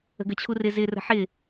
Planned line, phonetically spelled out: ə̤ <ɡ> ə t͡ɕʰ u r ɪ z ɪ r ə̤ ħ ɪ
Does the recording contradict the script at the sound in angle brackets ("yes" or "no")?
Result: no